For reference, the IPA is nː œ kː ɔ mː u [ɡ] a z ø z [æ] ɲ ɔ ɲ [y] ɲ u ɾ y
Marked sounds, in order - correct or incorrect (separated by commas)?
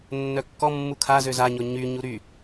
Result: incorrect, incorrect, correct